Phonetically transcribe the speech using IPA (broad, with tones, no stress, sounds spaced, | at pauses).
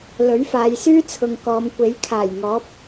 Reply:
l ɵ˨˥ ɥ f aː˨˧ j s yː˥ t͡sʰ ʊ˨ ŋ k ɔː˨˧ m kʷ e˨˥ j kʰ aː˨˩ j ŋ ɔː˨˥ p̚